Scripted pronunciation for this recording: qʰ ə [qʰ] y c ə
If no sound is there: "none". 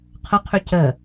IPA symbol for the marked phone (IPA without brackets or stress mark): qʰ